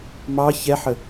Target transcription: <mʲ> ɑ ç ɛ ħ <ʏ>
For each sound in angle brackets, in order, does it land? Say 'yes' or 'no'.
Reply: no, no

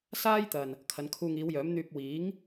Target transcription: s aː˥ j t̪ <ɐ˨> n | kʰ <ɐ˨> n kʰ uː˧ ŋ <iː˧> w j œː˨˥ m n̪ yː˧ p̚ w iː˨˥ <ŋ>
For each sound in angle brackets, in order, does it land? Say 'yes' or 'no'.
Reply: yes, no, no, yes

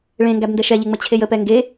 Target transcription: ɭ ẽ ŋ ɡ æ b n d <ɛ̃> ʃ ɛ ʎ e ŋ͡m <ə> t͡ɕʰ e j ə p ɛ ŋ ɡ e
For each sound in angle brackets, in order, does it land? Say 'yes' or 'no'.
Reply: no, yes

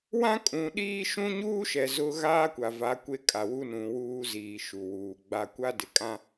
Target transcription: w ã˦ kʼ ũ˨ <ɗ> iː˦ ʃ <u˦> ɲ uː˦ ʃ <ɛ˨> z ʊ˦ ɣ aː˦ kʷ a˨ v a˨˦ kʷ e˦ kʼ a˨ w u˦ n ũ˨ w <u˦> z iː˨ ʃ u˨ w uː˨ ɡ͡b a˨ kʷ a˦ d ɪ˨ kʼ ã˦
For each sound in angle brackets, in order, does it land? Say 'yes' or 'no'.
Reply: yes, no, yes, no

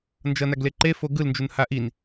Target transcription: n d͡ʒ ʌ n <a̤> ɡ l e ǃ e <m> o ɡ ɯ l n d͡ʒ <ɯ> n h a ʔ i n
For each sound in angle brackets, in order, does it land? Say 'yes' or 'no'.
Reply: no, no, no

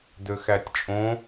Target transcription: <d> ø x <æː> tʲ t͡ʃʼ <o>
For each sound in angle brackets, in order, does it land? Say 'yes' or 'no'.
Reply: yes, no, no

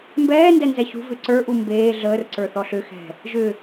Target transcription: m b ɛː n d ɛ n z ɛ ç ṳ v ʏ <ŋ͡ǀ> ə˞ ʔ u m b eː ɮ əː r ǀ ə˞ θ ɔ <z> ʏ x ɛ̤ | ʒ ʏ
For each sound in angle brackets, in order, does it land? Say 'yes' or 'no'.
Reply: no, no

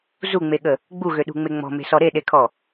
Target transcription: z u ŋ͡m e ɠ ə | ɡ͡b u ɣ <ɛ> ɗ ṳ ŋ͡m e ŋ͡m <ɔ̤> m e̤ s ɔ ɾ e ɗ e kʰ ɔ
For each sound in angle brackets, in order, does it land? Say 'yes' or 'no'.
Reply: no, yes

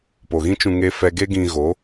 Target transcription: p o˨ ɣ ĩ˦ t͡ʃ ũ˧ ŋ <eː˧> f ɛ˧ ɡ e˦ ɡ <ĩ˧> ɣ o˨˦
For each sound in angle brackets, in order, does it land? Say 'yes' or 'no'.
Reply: no, yes

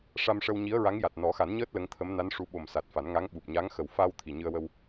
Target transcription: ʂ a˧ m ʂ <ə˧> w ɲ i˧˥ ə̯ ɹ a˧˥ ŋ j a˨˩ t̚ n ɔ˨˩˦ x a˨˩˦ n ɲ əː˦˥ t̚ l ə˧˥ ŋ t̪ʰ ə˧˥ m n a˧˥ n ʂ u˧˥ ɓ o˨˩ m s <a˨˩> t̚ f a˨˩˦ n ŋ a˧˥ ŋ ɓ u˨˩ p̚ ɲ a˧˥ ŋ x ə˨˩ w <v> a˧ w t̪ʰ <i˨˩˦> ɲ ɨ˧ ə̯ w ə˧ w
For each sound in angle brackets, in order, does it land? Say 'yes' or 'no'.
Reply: yes, yes, no, no

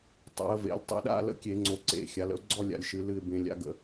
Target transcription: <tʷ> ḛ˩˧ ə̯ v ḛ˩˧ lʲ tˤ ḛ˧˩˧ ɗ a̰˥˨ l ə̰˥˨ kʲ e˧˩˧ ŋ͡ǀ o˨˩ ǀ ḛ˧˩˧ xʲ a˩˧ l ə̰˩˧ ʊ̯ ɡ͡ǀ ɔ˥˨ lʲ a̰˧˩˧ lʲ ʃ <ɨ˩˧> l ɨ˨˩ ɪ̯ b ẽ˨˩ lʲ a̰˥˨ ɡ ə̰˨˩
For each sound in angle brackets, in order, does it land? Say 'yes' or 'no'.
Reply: no, yes

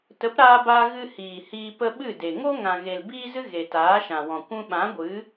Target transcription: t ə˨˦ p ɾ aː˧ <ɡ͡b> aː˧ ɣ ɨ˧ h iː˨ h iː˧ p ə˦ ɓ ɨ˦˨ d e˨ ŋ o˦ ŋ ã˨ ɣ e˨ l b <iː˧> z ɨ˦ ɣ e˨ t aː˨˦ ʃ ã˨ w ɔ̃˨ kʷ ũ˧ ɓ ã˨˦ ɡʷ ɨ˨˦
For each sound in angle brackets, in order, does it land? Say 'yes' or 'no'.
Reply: no, no

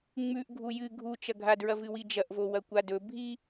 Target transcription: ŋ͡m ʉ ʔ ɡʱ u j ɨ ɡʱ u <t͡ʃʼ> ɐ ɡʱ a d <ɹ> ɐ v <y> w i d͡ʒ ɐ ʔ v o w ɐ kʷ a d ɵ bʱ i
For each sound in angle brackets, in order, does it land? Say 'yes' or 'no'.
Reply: no, yes, no

